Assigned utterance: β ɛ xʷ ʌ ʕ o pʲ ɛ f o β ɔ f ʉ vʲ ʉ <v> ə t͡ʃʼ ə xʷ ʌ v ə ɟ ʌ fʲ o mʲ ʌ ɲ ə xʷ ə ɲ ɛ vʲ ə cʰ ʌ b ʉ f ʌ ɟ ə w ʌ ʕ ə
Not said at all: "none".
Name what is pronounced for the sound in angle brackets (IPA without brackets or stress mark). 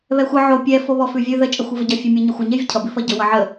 ð